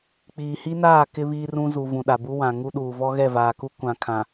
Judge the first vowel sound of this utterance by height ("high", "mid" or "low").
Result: high